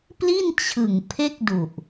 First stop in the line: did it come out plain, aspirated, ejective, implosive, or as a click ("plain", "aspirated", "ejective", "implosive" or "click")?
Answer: plain